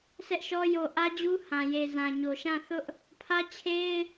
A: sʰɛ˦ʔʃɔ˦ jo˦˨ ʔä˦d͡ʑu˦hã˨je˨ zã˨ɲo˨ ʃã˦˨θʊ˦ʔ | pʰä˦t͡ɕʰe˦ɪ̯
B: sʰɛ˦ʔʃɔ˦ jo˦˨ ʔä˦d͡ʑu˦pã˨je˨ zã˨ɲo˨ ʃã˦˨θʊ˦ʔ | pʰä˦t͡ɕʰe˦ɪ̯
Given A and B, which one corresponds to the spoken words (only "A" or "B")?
A